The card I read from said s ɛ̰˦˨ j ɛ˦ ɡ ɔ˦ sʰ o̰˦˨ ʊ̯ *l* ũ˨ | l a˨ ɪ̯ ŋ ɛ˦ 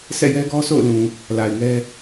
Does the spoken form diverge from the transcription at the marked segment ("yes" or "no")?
no